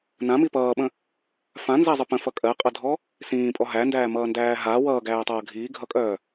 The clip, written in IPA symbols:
n ã m i p ʌː ɓ ə̃ | f ã n z æ zˤ ə p ə̃ f ʌ kʼ ɜ qʼ ʌ dʱ ɔ | s ĩː pʼ ɔ ɦ æ n d æː m ʌː n d æː ɦ a w ʌː ɡ æː tˤ ʌː ɡʱ iː ɡʱ ʌ kʼ œː

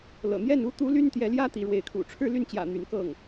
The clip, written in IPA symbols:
l ɤ̰˨˩ n̪ j ɛ˥˩ n u˥ t̪ u˧˥ l y˥ n t̪ j ɛ˧˥ l j ä˥ t̪ i˧˥ ɻ w e˧˥ ɪ̯ kʰ ṵ˨˩ ʈ͡ʂʰ ɻ̩˥˧ l y˥˩ n t͡ɕ j ä̰˨˩ n̪ y˧˥ n k ɤ˥˩ ŋ

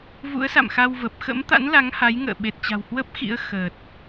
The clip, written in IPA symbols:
v ṵ˧˥ ə̯ s a̰˧˨ m x a˧ w v ə˨˩ p̚ x ə̰˧˥ m t̪ a̰˧˥ n l a˨˦ ŋ h a˨˦ j ŋ ə̰ː˧˨ ɓ e˨˩ t̚ t͡ɕ a̤˨˩ w h w ə˦˥ p̚ x ḭ˧˥ ə̯ x ə˨˩ t̚

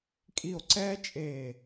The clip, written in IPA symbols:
kʼ i˧˩ o̯ ǀ ɛː˦ t͡ʃʼ eː˧˩

